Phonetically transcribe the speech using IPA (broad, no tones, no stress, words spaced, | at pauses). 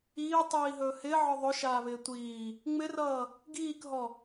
iːtˤiːɦɵː hɪːʕɔ ðˤɵʃaːβɪː tʷiː | ŋ͡mɪrʌː | ɡiːkɦɔ